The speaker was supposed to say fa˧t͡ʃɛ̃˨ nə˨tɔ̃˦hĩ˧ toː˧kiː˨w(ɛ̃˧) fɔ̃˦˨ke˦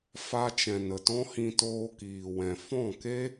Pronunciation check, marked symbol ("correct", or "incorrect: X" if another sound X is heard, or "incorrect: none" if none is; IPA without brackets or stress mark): incorrect: ɛ̃˨